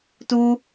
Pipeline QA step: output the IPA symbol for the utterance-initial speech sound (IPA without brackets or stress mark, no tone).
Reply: t